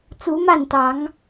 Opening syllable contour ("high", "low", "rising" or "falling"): rising